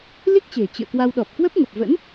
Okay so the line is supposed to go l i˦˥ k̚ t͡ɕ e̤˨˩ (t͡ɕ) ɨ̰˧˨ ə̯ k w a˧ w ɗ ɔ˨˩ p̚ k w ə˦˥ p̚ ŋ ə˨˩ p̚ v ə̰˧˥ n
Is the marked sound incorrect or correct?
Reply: correct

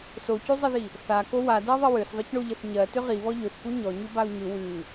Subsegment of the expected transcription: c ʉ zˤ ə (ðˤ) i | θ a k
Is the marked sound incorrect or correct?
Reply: incorrect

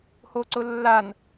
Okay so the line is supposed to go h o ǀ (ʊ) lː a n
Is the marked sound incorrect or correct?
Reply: correct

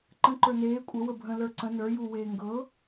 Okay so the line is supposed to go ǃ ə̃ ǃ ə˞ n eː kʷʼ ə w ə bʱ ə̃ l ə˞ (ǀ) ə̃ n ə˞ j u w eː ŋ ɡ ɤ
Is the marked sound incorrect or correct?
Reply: correct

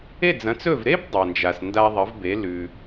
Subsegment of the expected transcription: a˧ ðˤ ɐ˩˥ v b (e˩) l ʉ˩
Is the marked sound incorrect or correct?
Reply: incorrect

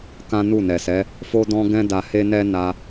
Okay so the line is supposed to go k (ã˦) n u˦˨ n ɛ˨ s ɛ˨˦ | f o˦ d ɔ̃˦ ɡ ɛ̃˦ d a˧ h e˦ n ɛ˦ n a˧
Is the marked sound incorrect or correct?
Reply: correct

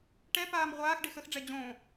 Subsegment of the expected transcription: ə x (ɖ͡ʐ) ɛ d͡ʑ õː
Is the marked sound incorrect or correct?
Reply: correct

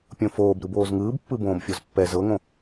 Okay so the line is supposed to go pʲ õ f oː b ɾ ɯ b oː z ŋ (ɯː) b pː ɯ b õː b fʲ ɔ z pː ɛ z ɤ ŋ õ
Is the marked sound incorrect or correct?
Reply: correct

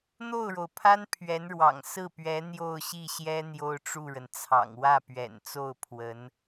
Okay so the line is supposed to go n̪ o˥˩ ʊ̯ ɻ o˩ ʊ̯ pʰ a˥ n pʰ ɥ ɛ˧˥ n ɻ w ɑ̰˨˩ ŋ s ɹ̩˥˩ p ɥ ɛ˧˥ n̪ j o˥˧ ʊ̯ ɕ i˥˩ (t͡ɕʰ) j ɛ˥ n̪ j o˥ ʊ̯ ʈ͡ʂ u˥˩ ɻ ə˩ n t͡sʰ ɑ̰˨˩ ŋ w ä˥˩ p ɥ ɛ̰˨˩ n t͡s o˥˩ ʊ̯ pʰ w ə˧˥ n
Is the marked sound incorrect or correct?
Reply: incorrect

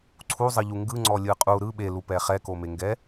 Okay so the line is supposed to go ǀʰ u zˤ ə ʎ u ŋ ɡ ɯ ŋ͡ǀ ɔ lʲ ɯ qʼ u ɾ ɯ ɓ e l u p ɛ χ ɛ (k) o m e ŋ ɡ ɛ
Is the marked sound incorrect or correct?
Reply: correct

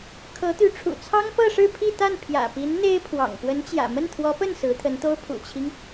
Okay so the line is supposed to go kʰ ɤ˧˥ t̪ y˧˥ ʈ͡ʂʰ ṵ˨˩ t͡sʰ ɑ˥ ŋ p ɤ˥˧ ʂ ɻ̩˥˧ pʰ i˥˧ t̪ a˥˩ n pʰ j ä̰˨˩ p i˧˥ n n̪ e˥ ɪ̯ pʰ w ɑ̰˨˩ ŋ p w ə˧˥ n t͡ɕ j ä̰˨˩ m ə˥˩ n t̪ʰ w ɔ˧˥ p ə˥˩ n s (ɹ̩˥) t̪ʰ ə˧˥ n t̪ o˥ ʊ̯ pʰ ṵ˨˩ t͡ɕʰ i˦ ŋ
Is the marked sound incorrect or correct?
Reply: incorrect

